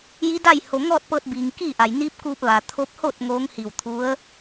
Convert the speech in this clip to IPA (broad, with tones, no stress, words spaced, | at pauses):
ji˧˥da˥˨j ho˩ ŋɔː˥˨t̚pɤː˧t̚biː˩ŋ kiː˥˨ʔa˩j niː˧˥p̚kuː˧p̚ ʋa˩ t̪ʰo˧p̚ho˥˨t̚ ŋoː˧˥ŋhi˧˩w t̪ʰu˧˥ə̯